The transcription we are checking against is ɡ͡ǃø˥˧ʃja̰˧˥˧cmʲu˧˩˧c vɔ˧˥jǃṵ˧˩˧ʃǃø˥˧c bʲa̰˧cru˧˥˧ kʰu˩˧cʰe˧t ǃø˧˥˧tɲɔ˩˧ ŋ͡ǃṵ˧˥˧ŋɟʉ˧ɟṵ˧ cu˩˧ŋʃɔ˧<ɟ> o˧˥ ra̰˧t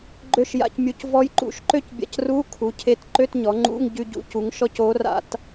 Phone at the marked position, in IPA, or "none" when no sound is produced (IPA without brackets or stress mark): c